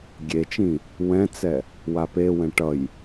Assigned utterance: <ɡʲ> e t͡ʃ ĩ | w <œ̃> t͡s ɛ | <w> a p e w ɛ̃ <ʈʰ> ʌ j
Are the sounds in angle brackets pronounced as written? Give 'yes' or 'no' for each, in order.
yes, no, yes, no

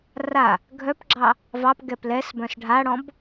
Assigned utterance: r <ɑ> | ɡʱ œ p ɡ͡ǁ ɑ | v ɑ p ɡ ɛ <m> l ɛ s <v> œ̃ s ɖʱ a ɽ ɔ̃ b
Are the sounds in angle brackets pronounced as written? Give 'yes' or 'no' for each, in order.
no, no, no

